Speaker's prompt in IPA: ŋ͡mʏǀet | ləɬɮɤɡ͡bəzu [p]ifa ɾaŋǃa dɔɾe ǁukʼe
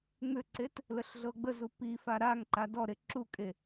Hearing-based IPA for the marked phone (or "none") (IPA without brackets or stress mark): p